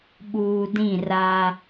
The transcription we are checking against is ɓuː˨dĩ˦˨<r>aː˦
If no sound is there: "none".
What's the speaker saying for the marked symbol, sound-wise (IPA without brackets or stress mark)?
r